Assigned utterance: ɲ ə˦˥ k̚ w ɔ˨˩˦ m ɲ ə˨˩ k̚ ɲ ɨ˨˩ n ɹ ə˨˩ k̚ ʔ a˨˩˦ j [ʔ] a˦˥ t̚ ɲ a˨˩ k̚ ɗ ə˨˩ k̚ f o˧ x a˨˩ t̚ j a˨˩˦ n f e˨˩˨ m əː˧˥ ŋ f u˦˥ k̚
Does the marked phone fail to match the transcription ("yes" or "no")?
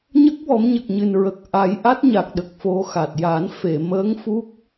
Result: no